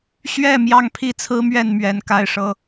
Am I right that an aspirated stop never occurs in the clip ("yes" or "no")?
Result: no